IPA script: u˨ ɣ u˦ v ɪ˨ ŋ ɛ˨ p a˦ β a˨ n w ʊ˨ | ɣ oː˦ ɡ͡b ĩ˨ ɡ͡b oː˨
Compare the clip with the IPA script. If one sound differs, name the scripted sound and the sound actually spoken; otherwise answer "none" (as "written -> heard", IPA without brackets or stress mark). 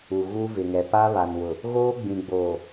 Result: none